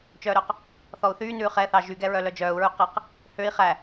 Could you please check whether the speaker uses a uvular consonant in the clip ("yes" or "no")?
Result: yes